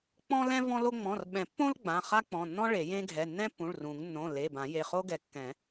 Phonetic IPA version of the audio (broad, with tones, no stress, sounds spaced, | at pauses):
k͡p ɔ̃˥ l ɛ̃˥ v ɔ̃˥ l o˥ ŋ͡m ɔ̃˩˧˩ r ɓ ɛ̃˨˩˦ pː õ˥ l ɡ͡b ã˩˧˩ χ a˥ k͡p ɔ̃˩˧˩ nː ɔ̃˥ ɭ e˨˩˦ j ẽ˥ ɡʱ ɛ˩˧˩ nː ɛ̃˥ pː ũ˩˧˩ ɭ r ũ˨˩˦ ŋ nː õ˩˧˩ l e˩˧˩ b ã˨˩˦ j e˩˧˩ χ o˥ ɡ ɛ˨˩˦ kː ɛ̃˨˩˦